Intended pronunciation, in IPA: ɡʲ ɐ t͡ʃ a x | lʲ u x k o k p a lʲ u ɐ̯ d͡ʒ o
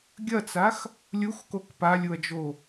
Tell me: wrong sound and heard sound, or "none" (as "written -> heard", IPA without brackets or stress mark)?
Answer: t͡ʃ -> t͡s